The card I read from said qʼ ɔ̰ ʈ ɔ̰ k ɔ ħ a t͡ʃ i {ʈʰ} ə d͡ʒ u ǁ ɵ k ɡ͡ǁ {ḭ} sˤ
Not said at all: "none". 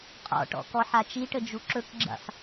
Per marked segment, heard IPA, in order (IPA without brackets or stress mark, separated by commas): ʈ, ḭ